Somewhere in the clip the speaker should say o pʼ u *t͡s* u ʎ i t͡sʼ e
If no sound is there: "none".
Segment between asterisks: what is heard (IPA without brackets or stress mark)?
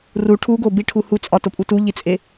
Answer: t